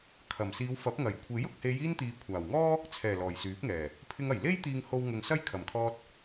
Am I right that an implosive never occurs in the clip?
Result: yes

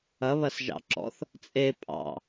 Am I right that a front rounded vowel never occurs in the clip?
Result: yes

